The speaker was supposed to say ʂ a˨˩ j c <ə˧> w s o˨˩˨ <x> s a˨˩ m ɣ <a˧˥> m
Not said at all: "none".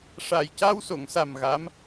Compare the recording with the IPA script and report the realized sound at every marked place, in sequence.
a˧, ŋ, a˧˥

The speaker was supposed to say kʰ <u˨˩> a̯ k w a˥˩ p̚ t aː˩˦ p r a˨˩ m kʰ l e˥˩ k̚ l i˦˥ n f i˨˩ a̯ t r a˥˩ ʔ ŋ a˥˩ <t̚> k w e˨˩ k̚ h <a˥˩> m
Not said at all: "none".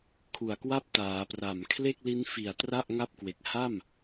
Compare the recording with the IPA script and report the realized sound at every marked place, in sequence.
u˨˩, p̚, a˥˩

